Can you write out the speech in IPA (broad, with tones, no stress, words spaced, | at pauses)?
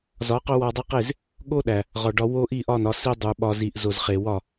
zɒ˨˦qo˦wɒ˧dˤe˦q e˦˨z | ɠo˦ɗæ˨ | ʁɒ˨ɖɒ˧wo˦ ʔi˦˨ʔɒ˦˨nɒ˧ si˧ dˤu˨ɓɒ˧ zi˨ʔzo˨zχe˨ wɒ˦˨